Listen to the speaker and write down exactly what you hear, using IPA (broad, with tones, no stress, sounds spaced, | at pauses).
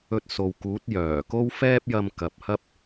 ɵ˧ t̚ s o˨ w k uː˨˥ t̚ j œː˨˩ k o˥ w f ɛː˥ p̚ j ɐ˧ m k ɐ˨ p̚ h ɐ˥ p̚